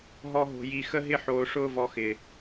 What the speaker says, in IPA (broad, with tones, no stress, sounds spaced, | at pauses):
ɦ ɔ˦ ɦ o̤˧ j i˧ x ə˦ ɦ ɪ˦ ħ oː˧ ʂ ʊː˦ v ɔ˧ x ɪː˨